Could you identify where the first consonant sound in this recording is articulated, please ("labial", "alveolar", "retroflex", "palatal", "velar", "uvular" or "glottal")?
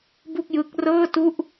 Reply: labial